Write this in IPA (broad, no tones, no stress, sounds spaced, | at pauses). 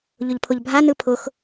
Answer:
ʎ ʊ ʎ pʰ ʊ ʎ bʱ a n ɯ pʰ ʊ x